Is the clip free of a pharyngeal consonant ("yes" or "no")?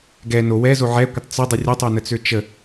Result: no